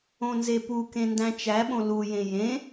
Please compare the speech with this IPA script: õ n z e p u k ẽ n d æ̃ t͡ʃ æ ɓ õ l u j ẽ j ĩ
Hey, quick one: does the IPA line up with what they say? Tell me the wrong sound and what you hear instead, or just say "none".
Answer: ĩ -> ẽ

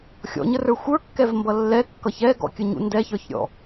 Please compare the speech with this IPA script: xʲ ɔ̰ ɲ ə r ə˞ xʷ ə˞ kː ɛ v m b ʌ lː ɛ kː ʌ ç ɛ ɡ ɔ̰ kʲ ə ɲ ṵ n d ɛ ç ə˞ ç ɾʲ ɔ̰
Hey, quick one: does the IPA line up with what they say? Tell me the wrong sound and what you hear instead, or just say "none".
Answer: none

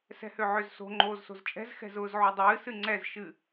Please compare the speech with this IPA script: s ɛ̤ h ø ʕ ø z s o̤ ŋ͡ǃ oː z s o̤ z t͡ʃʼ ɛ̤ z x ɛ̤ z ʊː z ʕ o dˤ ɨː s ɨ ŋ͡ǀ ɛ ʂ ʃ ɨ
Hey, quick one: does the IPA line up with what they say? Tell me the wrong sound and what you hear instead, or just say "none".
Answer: ʂ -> z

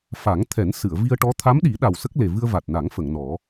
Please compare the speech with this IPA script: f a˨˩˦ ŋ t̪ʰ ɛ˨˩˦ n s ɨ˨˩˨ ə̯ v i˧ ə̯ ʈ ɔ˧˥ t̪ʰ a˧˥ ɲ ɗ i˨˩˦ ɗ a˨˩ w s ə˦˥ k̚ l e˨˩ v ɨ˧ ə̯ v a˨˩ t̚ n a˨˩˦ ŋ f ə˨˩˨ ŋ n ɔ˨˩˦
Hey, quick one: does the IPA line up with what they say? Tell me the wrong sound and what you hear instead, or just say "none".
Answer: ɲ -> m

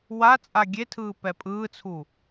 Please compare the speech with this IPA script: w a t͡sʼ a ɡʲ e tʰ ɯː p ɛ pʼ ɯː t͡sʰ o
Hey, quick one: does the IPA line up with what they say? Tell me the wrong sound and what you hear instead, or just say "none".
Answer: o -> u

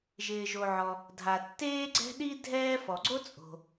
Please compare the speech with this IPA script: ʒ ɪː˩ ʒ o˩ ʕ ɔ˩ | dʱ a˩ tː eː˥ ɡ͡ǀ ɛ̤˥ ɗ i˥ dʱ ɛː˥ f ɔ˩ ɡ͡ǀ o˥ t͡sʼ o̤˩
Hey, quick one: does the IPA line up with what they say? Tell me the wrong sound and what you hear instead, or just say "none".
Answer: none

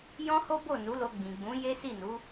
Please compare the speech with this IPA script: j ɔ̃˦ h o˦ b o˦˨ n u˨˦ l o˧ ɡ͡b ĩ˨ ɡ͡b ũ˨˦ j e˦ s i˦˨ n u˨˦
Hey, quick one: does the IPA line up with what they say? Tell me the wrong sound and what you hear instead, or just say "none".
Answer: none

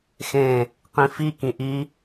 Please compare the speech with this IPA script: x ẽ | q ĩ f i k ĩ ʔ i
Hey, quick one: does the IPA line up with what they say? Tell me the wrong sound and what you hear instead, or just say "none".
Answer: none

